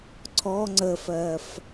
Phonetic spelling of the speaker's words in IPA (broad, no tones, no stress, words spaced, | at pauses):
ǀʰɔ ŋ͡ǀəfɜf